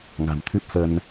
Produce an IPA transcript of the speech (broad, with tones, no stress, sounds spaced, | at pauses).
ŋ a̤˨˩ m t̪ʰ ɨ˦˥ p̚ f ə˧ n